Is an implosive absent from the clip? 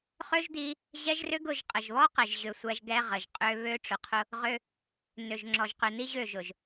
yes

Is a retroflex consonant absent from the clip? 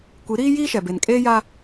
yes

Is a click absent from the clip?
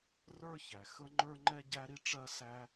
no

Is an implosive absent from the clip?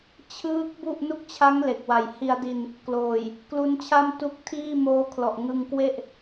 yes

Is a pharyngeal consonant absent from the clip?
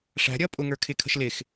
yes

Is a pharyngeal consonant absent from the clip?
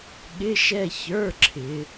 yes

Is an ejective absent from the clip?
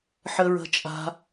no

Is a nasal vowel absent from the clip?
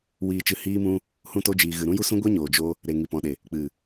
no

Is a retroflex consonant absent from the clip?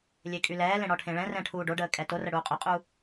no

